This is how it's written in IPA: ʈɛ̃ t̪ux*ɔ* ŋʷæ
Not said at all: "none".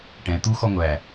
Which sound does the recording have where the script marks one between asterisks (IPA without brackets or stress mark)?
ɔ